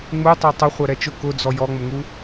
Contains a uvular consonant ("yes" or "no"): yes